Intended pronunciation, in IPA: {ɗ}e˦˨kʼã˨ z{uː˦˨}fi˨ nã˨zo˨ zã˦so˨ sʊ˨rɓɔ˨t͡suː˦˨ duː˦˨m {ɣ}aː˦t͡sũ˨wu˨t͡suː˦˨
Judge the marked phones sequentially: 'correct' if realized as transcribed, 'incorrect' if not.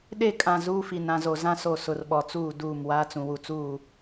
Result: correct, incorrect: uː˦, incorrect: w

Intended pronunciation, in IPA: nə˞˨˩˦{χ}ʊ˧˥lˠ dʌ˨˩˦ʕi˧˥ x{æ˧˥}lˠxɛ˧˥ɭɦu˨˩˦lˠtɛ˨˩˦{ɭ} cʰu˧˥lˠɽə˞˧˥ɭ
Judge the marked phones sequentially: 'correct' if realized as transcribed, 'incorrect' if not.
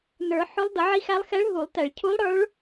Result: incorrect: ħ, correct, correct

